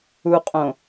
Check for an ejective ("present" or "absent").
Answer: present